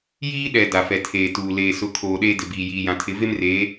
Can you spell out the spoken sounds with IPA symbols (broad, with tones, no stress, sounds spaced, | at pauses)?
j iː˦ ɗ ɛ˨ d a˨ f ɛ˨ tʰ eː˨ t uː˨ l eː˨ s ʊ˨˦ kʰ oː˨ ɗ eː˦ d ɪ˨ b iː˨ j iː˨ j ã˨ tʰ ɪ˨˦ v e˦ m r eː˨˦